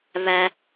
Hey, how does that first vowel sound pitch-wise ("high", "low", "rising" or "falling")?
high